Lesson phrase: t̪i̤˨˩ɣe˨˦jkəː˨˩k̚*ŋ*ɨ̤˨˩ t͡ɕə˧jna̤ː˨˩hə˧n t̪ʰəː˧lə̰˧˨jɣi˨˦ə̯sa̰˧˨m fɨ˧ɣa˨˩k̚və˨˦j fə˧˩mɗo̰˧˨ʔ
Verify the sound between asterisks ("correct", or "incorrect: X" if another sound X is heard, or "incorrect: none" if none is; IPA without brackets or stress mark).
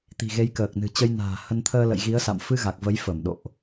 incorrect: n